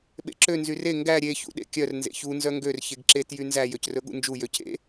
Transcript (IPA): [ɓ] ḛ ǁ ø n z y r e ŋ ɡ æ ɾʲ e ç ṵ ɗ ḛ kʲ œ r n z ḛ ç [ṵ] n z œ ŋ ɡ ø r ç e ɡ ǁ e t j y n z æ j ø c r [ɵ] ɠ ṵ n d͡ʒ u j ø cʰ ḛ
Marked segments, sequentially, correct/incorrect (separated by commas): correct, incorrect, correct